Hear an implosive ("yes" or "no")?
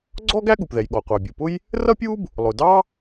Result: yes